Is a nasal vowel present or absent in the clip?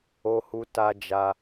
absent